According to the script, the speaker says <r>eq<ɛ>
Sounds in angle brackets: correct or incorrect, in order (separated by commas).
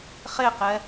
incorrect, correct